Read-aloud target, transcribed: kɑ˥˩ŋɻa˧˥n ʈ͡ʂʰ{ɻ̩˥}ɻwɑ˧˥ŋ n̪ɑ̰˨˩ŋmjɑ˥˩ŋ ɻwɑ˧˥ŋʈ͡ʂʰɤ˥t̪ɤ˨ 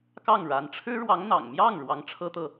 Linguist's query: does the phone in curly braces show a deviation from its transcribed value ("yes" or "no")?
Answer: no